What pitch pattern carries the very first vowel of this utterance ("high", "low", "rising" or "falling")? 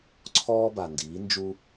high